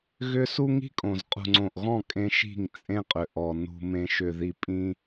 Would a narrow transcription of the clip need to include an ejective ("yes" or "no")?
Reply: yes